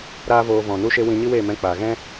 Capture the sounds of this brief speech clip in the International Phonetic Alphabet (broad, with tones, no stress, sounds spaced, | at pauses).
ɾ aː˦ v oː˧ v ɔ̃˨ n u˧ ʃ e˧ w ĩ˧ ɲ i˦ w eː˦˨ m ɛ̃˧ k͡p aː˨ ɣ ɛ̃˦